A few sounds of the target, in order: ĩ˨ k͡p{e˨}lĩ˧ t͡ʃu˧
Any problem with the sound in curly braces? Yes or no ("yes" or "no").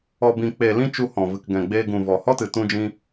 no